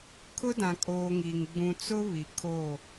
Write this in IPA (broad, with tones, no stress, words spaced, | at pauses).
kʰʊ˦dã˨ kʼoː˨ ŋi˨ŋ ɡ͡bũ˨t͡sʊ˦ βi˨kʰo˦˨